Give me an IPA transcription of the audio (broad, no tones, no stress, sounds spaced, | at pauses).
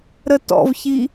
ɾ ə t ɔ̰ v ç i